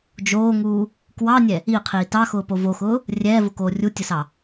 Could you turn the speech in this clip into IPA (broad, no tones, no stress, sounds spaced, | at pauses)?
d͡ʒ oː ŋ uː | k w ɑ nʲ ɛ | i qʰ iː t ɑ x ʊː p o v o x ʊː | rʲ ɛː v ʊ k oː rʲ u tʲ ə s ɑ